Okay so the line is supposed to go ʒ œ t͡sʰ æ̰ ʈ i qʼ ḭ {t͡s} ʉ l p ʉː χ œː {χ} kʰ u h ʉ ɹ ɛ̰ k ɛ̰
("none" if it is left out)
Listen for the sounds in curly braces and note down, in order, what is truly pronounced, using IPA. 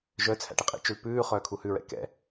t͡ʃ, none

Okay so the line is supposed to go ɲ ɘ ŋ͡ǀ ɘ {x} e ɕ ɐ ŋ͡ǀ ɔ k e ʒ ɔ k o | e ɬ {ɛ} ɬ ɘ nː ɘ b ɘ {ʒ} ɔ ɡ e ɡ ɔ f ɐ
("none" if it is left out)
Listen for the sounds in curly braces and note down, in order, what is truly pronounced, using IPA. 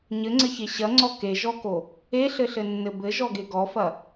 ç, ɘ, ʒ

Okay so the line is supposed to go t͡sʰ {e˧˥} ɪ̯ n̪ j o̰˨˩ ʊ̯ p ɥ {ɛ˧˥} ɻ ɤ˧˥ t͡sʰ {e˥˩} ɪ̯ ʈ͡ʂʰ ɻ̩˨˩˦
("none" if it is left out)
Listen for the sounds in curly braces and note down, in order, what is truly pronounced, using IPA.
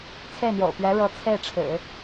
e˥˩, ɛ˧˥, e˥˩

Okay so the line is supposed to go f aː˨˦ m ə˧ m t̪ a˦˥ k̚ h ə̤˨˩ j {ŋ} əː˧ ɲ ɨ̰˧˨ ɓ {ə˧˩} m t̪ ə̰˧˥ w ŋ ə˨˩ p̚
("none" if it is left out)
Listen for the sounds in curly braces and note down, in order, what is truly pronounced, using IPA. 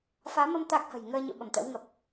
ŋ, ə˧˩

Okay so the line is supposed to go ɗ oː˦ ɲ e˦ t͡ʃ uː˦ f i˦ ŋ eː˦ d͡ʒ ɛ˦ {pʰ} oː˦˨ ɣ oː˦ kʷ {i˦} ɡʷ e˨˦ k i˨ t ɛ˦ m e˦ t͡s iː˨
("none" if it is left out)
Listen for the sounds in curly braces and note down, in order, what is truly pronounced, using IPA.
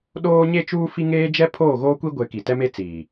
pʰ, i˦

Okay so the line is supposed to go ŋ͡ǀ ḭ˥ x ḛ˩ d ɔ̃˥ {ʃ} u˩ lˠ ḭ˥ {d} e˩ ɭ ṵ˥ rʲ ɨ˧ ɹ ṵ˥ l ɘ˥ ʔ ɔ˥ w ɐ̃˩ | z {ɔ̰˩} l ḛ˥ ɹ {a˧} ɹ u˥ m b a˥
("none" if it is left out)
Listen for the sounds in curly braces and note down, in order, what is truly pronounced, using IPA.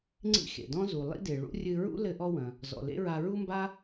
z, d, ɔ̰˩, a˧

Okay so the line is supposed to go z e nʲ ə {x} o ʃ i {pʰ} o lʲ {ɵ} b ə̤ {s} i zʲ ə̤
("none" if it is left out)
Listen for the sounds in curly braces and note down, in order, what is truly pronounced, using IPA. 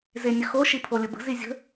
x, pʰ, ə, z

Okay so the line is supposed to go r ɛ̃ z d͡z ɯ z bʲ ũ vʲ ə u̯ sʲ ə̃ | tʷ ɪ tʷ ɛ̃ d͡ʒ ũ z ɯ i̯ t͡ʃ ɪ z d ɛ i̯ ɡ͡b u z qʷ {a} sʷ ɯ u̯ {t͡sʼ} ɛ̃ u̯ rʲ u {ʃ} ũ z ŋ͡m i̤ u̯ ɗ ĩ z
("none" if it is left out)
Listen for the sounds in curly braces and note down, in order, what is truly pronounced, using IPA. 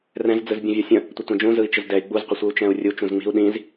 ə, t͡ʃ, t͡ʃ

